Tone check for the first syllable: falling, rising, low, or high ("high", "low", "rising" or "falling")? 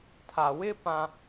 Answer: low